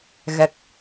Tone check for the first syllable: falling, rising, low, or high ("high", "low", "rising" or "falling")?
low